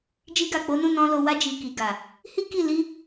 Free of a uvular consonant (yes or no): yes